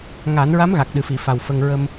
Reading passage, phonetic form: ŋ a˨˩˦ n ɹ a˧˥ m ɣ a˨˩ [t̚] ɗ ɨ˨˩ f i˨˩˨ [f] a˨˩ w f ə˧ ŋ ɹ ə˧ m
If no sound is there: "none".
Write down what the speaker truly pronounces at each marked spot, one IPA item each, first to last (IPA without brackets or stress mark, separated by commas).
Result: k̚, f